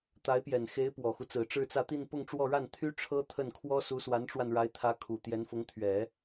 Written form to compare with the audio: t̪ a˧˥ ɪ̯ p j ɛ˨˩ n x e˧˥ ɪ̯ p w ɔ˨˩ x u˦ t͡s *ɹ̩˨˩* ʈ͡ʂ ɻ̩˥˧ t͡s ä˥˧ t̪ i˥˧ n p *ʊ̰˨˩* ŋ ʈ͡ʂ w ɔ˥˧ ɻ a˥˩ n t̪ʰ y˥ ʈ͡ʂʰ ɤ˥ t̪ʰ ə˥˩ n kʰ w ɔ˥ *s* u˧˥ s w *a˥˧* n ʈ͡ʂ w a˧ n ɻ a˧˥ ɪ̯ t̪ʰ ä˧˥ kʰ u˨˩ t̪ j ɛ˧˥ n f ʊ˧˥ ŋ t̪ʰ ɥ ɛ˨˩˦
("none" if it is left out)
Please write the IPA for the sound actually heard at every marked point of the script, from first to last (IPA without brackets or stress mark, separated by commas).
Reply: ɹ̩˨˩, ʊ˥˧, s, a˧˥